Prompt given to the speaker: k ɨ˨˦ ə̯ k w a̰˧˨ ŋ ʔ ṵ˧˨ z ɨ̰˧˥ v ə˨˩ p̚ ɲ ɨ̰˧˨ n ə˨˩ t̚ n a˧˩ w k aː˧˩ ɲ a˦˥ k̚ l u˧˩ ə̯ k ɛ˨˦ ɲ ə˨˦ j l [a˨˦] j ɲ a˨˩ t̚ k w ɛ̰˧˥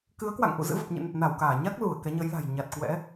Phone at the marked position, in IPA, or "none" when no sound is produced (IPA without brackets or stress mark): a̤˨˩